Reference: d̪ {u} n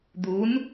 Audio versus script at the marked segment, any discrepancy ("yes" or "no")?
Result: no